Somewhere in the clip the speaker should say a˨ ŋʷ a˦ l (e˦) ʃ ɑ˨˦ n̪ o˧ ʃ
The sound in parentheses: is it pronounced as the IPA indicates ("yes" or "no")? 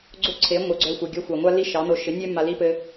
no